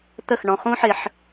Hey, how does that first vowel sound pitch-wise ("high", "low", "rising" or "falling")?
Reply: falling